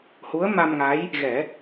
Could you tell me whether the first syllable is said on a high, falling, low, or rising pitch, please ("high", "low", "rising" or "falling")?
rising